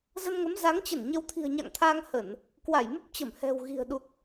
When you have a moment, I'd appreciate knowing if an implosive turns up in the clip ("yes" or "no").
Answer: yes